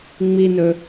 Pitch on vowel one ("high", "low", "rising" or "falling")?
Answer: low